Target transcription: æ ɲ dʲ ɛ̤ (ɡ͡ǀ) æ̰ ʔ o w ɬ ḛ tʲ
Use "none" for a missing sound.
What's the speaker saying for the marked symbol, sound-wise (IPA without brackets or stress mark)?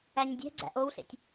ɡ͡ǀ